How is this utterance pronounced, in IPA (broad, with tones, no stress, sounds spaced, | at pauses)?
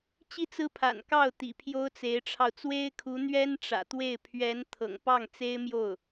t͡ɕ i˥˩ t͡s ɹ̩˥ pʰ a̰˨˩ n k ɑ˥˩ ʊ̯ t̪ ḭ˨˩ pʰ j o˥ ʊ̯ t͡s e˧˥ ɪ̯ ʈ͡ʂʰ ɑ˧ ʊ̯ t͡s w e˥ ɪ̯ kʰ u˧˥ n̪ ɥ ɛ˥ n ʈ͡ʂ ä̰˨˩ t̪ w e˥˩ ɪ̯ pʰ ɥ ɛ˧˥ n t̪ʰ ɤ̰˨˩ ŋ p ɑ˥˩ ŋ t͡s e˥ ɪ̯ m j o˥˩ ʊ̯